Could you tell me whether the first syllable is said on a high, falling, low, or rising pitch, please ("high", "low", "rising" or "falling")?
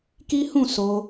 high